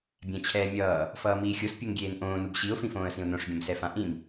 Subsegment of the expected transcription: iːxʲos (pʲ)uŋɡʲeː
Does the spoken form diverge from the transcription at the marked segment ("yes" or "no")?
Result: no